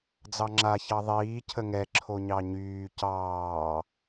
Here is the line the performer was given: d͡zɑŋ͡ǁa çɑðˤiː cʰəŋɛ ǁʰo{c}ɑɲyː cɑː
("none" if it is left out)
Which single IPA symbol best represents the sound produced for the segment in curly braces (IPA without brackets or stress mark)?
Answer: ɲ